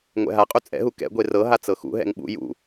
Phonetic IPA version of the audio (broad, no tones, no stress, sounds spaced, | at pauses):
ŋʷ ɛ̰ ɦ a qʼ u t͡sʼ ɛ̰ ɦ u k ɛ̰ ɡʷ e r ɤ ɦ a t͡s ɤ x ṵ ɦ ɛ̰ ŋ ɓ ṵ j ṵ